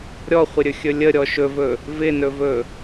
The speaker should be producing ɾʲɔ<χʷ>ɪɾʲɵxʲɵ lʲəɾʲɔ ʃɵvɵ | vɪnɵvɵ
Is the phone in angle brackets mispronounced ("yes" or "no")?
no